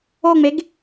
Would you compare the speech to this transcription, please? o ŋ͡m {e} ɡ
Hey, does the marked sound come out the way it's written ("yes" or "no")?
yes